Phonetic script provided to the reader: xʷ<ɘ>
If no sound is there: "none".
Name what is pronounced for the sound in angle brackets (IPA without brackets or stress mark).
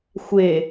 e